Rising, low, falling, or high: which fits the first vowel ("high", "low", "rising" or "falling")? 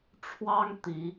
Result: high